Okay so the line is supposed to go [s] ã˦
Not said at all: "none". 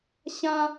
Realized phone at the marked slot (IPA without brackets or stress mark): ɕ